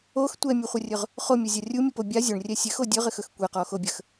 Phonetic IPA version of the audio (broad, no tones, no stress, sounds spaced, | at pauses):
o x tʷ ɛ mʲ u χʷ ɐ rʲ ɵ ʁ | χ o mʲ o zʲ a rʲ u mʲ u p o bʲ a zʲ o ɳ rʲ ɛ sʲ ɘ x o dʲ ɵ ʁ ɘ x ɵ x kʷ ɛ q ɔ x o bʲ ə x